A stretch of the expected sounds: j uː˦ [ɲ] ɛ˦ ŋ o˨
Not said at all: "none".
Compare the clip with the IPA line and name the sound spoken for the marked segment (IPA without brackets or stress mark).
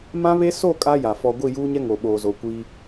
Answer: ɲ